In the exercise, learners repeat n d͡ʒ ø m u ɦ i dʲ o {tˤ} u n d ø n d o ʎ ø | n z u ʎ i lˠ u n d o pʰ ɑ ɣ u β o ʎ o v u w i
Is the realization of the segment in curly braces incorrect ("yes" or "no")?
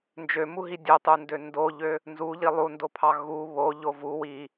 no